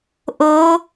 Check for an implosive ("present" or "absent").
absent